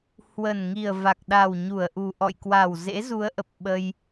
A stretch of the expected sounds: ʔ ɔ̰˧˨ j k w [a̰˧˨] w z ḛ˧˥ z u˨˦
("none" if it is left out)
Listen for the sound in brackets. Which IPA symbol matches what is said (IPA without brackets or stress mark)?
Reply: a˨˩